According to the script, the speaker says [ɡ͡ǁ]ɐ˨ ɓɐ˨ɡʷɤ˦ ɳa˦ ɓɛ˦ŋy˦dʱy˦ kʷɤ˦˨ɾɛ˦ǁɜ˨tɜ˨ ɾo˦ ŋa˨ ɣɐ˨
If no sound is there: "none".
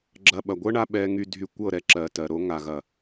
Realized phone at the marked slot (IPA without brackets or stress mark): ɡ͡ǁ